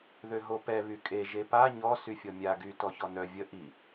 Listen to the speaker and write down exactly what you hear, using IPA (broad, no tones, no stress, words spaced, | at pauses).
ðøɦopɛ βykʼe ʒepa ɲɔ syfʲɔmʲa ɡy tɔçɔnœ vʲə ʔi